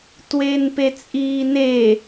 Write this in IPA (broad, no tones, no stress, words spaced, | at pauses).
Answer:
tweːnpet͡sʼiːne